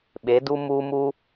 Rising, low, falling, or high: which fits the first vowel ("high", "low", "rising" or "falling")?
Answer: rising